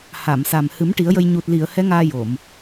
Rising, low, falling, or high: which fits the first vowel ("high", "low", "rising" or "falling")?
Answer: low